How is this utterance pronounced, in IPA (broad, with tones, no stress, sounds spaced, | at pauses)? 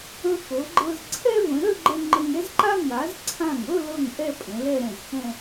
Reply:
ə̃˧ x ɤ˩˧ ɡ͡ǃ ɤ˧ z ǀʰ ɛ˥ v ə̃˩˧ ɾ ə˥˧ ɡ͡ǃ ə˧ ŋ͡ǃ ə˧ ŋ ɛ˥ z ǃ a˥ ŋ a˩˧ z ǀʰ ã˧˩ ŋ ɤ˥˧ l ɤ˥˧ ŋ ʔ ɛ˥˧ pʼ ə̃˩˧ l ɛ˥˧ ɾ ɛ̃˧˩ z x ɛ̃˥˧